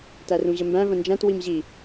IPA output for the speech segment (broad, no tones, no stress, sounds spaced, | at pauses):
t æ r ũ ʑ ə m b æ̃ v ə̃ n d͡ʒ æ̃ t w i m ʑ i